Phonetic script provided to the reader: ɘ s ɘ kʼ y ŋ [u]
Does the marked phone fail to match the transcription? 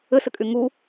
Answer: no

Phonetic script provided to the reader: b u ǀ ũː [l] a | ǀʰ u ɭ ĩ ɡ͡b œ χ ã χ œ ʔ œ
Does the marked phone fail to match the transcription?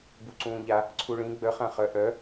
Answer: yes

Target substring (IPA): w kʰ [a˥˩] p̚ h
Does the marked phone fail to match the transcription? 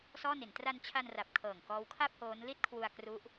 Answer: no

